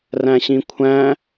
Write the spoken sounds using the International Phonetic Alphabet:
ræ̃ɕĩkʷʰæ̃

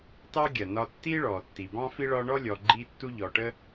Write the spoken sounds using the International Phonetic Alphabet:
tɑ˦ɡʲɜ˩ nɒ˨tːi˦ ɭɔː˩tːi˩bɑ̃˦fi˦ ɭɒ˦ ɳɔ˥lʲɔ˨ ɡ͡ǃi˦tːu˦ʎɔ˨ʈə˥

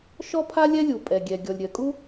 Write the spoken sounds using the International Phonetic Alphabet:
ʃɔ˥pʰa˥lʲɛ˥lʲu˩ pʼɛ˩ɡʲɛ˩ ɡʲɔ˩lʲɾʲɜ˩kʼu˥

